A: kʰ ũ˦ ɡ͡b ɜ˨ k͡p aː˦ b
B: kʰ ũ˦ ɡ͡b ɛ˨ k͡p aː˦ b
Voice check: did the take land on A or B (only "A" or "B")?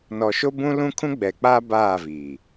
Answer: B